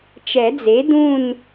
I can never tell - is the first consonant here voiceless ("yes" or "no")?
yes